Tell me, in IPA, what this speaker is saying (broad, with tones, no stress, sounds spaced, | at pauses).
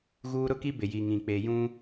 ɣ uː˦ ɾ ʊ˦ k i˦ b ɪ˨ j i˨ ŋ ĩ˨ k͡p e˨ j ũ˦